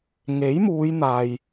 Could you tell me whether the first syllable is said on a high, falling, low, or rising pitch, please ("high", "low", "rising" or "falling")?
rising